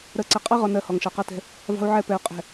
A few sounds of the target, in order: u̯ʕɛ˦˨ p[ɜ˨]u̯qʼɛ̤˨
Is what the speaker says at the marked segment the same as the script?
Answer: no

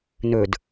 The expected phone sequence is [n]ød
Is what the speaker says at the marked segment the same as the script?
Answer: yes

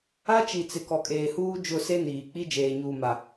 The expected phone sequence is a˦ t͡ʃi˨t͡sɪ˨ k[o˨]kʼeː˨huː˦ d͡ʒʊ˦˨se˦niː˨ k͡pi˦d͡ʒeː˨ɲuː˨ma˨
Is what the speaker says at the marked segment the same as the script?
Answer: no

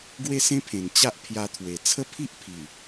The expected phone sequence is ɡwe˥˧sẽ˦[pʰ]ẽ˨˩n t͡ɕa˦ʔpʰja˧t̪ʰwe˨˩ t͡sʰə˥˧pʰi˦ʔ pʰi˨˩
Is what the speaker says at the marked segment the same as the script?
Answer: yes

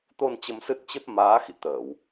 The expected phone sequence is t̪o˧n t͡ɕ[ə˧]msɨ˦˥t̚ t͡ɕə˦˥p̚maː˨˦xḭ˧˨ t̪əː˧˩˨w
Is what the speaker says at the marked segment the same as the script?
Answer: yes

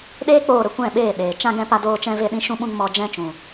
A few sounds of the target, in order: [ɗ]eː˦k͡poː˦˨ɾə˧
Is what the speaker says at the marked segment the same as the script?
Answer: yes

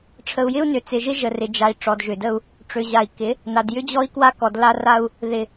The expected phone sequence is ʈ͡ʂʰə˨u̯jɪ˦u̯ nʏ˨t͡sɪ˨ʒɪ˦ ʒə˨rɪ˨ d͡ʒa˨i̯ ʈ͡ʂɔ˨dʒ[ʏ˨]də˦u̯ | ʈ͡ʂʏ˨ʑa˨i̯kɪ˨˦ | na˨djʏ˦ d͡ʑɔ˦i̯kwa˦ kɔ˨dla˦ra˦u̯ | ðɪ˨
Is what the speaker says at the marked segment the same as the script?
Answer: yes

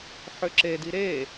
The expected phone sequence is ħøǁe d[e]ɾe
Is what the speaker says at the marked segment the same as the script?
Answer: no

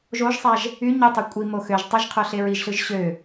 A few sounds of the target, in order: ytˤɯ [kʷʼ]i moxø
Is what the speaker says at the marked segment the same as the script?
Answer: yes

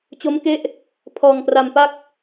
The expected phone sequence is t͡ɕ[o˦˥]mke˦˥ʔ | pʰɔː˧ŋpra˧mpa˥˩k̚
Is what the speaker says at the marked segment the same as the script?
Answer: yes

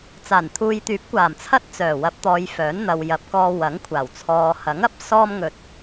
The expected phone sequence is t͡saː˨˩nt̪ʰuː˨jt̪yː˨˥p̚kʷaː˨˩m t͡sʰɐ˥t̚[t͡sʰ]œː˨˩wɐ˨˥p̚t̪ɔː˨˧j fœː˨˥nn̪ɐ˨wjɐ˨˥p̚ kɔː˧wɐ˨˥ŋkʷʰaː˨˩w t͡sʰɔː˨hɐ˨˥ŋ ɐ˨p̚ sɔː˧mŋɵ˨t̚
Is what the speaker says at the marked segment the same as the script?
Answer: no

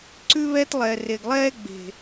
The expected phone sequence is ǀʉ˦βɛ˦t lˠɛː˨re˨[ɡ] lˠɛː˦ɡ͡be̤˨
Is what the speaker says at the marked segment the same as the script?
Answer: yes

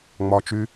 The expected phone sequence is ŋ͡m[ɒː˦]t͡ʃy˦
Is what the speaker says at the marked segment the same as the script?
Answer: yes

